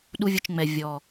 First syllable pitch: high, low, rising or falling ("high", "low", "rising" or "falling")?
high